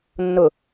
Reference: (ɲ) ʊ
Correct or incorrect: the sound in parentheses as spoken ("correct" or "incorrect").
incorrect